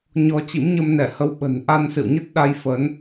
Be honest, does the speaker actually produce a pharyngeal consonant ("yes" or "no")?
no